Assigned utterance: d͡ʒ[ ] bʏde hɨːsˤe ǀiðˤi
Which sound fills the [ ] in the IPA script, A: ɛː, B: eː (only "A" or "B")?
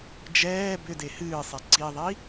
A